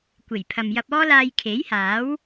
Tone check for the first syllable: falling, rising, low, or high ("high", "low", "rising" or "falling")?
low